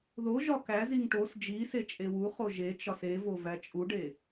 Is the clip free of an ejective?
no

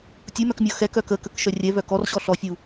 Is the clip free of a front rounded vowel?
no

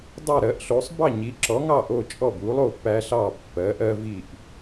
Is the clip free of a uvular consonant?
yes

